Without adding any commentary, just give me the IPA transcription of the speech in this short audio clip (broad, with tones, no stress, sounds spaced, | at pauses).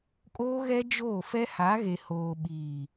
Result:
kʼ oː˦ ɣ ɛ˦ d͡ʒ oː˦˨ f ɛ˦ h a˨˦ ɣ e˨ h oː˨ ɓ iː˨